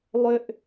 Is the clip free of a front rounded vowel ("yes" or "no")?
no